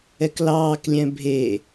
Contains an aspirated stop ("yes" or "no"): no